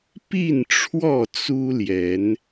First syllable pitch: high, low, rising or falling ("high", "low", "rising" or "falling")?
falling